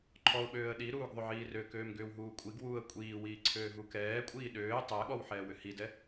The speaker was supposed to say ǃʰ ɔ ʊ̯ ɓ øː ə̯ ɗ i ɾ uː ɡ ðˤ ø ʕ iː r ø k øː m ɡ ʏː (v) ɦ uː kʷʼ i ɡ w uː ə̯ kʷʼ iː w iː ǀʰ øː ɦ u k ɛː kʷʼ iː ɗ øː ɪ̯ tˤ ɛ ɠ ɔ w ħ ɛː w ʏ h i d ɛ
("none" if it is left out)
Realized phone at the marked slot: w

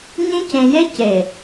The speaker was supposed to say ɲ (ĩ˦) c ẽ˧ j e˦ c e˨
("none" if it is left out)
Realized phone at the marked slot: ĩ˦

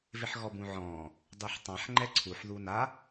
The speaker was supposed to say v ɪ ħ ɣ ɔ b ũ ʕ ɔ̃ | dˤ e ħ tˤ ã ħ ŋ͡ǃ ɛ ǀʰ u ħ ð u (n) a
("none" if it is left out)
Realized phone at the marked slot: n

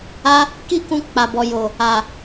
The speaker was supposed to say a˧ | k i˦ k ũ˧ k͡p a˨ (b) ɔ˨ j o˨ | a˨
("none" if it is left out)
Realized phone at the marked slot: b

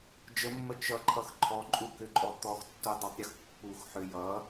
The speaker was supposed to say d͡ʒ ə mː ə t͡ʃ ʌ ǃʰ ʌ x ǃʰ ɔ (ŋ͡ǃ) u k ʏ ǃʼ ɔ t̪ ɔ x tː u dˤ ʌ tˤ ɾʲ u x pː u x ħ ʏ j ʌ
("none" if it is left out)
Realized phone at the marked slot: ǃʼ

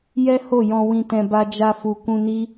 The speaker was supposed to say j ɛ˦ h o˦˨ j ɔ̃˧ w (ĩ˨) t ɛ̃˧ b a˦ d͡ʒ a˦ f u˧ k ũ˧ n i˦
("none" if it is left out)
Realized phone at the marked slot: ĩ˧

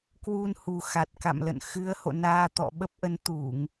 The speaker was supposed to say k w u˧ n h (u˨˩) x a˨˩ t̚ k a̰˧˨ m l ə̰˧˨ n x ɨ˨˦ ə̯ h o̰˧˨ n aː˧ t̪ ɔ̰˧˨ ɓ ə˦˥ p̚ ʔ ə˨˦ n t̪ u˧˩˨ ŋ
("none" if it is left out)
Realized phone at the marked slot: u˨˩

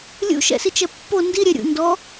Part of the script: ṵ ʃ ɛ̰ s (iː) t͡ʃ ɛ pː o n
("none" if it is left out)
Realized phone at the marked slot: i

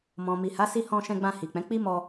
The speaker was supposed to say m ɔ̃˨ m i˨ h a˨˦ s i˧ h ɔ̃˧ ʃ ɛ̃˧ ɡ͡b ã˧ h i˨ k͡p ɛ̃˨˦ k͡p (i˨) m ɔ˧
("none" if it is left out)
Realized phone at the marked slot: i˦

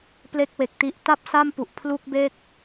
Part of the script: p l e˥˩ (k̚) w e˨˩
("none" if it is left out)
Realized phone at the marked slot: k̚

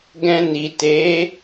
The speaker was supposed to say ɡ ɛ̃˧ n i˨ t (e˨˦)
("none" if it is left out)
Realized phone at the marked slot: e˨˦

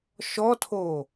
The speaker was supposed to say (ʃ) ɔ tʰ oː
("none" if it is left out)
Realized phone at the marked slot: ʃ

